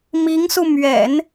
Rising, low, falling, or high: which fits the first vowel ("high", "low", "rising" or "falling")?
rising